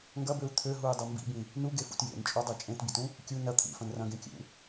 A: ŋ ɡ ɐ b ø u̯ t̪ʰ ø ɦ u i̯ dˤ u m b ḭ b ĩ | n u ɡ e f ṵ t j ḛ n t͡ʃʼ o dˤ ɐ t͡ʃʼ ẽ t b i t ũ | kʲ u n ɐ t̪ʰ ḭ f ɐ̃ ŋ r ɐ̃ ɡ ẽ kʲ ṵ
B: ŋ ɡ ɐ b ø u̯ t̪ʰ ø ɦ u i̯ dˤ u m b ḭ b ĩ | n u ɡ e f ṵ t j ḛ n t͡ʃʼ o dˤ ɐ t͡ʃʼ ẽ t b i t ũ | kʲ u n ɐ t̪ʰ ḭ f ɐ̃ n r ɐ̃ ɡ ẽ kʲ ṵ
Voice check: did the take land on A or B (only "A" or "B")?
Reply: B